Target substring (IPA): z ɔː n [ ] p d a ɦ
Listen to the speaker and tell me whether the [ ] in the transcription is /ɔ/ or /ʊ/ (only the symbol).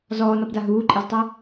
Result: ɔ